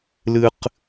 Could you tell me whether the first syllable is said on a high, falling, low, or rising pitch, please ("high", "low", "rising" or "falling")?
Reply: high